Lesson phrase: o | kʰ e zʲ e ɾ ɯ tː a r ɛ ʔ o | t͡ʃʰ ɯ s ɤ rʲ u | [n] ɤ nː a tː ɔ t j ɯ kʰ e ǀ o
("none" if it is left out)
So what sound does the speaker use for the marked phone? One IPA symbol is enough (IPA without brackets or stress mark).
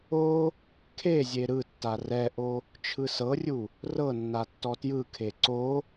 r